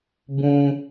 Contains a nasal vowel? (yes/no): yes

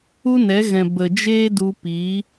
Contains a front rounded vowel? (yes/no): no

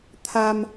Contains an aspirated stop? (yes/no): yes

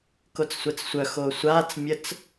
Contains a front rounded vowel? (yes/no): yes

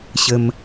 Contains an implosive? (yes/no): no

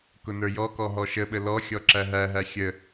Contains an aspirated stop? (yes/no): no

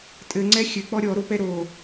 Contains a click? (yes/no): yes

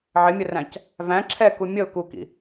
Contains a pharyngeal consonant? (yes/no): yes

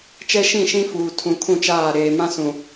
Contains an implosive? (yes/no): no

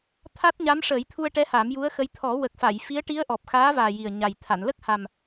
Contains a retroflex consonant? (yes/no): yes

